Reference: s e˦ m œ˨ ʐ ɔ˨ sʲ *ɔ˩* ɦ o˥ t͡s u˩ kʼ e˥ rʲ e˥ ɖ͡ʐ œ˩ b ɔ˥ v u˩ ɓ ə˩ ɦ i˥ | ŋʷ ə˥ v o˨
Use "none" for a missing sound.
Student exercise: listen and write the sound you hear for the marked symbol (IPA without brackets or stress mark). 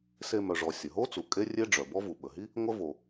ə˩